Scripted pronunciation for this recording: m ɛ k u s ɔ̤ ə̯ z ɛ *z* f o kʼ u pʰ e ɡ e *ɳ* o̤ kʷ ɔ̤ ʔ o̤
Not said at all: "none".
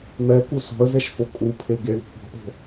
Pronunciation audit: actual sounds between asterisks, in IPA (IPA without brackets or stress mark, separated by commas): ʃ, ɳ